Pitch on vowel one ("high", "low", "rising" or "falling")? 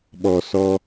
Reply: low